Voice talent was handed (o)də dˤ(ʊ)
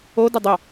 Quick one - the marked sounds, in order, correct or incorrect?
correct, incorrect

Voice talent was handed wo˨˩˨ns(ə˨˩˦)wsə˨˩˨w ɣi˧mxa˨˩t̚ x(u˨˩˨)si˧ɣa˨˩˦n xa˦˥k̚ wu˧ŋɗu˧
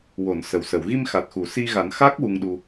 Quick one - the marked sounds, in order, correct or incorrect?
incorrect, correct

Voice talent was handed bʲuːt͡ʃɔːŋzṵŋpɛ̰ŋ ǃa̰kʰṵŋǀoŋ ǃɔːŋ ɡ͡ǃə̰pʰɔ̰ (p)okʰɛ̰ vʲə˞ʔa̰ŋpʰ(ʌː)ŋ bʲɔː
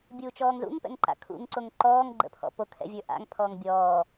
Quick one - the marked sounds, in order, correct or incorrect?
correct, incorrect

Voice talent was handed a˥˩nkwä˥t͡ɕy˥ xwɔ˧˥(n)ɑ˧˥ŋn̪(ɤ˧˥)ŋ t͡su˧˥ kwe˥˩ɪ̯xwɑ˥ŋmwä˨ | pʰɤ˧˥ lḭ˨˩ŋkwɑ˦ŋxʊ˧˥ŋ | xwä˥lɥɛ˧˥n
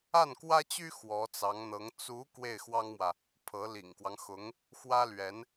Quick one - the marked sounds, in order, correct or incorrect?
incorrect, correct

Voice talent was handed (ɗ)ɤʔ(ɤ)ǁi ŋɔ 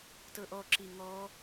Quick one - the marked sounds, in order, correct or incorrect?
incorrect, incorrect

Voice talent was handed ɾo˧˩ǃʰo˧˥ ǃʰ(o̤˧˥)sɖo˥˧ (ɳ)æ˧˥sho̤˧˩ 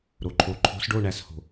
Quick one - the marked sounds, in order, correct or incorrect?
correct, correct

